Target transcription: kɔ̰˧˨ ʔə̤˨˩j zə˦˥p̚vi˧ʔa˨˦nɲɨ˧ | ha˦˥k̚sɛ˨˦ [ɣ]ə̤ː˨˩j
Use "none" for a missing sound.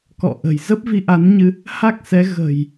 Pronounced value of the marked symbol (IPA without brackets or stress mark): ɣ